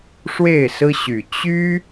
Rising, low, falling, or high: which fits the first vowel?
falling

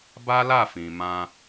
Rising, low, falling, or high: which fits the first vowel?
high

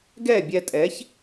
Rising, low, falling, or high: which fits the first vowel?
falling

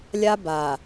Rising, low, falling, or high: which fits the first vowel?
high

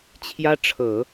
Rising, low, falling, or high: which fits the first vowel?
high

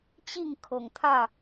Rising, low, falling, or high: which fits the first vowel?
falling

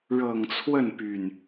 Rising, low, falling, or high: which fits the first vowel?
low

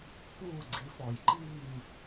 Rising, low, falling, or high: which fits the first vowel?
falling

